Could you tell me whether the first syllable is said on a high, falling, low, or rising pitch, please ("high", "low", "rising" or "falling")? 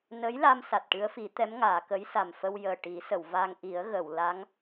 rising